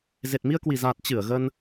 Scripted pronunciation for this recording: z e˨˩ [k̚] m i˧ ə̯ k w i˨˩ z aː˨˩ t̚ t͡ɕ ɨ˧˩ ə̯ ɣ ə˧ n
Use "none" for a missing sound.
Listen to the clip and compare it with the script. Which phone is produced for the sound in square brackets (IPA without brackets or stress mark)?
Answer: t̚